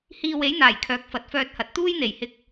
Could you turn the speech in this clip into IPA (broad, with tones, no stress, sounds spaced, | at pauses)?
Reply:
h iː˧ w e˨˥ j n̪ aː˨˩ j kʰ œː˨˥ k̚ f ɐ˨˥ t̚ f œː˧ t̚ h ɐ˨ t̚ t̪ uː˥ j n̪ e˨˩ j h ɪ˧ k̚